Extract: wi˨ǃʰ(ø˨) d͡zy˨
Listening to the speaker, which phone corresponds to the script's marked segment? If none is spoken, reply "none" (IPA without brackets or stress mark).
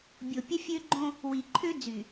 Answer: ø˦